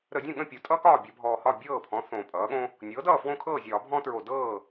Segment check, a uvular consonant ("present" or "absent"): absent